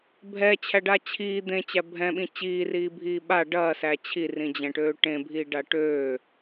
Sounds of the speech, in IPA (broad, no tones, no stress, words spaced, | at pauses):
bʱɛt͡ɕʰæɖa t͡ɕʰiː d̪ẽt͡ɕæ bʱɛ̃ɓĩ t͡ɕiːriːbʱiː ɓa ɖɐːsæ t͡ɕʰirĩd͡ʑɛ̃ʈøː ʈẽbʱiːɖa ʈøː